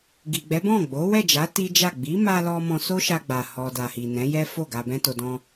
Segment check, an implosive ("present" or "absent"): absent